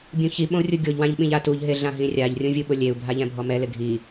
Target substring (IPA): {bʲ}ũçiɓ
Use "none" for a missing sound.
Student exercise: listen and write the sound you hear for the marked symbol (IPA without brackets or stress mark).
bʲ